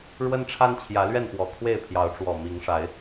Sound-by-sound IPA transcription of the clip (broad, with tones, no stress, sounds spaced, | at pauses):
ɻ w ə˦ n ʈ͡ʂʰ a˦ n t͡ɕʰ j ä˨˦ l ɥ ɛ˥˨ n p w ɔ˨˩ kʰ w e˥˨ ɪ̯ pʰ j ɑ˨˦ ʊ̯ ʈ͡ʂ w ɔ˨˩ m i˨˦ ŋ ʂ a˨˦ ɪ̯